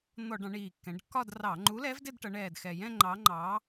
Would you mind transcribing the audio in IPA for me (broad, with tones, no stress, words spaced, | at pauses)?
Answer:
n̪ɔ˧˩˧ ɖɑ̃˩˧ɳiː˨˩kːɛ̃˩˧ɖkːɒ˥˧d rɑ˧˩˧ ŋ͡ǃu˨˥lɛ˨˥v dɪ˥˧dʈʌ˩˧ɳɛː˨˩d xɛ˨˩jɛ̃˥˧ ŋ͡ǃɑ˨˥ ŋ͡ǃɑ˩˧